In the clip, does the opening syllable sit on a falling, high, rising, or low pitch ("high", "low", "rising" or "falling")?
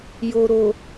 low